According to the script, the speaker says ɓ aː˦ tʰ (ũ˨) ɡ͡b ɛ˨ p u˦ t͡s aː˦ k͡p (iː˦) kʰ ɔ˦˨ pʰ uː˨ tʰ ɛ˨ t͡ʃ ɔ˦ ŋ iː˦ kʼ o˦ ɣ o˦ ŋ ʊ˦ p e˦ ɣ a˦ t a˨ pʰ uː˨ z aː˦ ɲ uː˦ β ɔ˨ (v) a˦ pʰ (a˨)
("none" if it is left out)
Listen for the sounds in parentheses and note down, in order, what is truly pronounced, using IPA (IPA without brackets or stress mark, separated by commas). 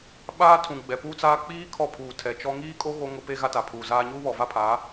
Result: ũ˨, iː˦, v, a˨˦